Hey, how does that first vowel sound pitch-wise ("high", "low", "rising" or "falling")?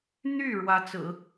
falling